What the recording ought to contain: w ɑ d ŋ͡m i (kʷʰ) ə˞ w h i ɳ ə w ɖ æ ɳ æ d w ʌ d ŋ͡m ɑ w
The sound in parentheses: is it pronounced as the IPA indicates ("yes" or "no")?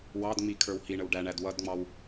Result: no